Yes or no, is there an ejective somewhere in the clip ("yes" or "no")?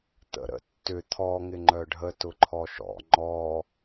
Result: no